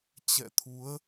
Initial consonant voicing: voiceless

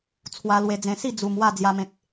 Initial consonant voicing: voiceless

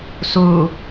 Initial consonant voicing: voiceless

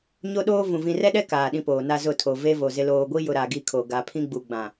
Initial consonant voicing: voiced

